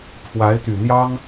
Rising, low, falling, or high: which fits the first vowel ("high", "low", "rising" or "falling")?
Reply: rising